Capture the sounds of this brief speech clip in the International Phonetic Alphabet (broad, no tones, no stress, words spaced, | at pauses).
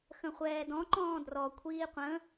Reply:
xə̃χʷɛːdɔ̃ ǃɔ̃ːdrɔ kʷʰiːqʷə̃